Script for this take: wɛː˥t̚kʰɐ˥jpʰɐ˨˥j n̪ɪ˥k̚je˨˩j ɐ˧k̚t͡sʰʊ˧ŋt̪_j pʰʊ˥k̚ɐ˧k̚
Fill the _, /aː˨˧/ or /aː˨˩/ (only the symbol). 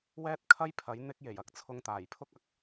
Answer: aː˨˩